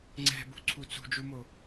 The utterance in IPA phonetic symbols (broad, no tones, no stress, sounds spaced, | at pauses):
ŋ͡ǀ ɛ̤ b ṳ ǀʰ u t͡s ṳ d͡ʒ u m o